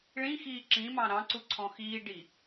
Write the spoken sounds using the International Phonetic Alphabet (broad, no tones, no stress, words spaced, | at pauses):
ɭĩxiː ǁĩmɑ̃ ɾɑ̃ǀuǀʰɔ̃ xiːɖi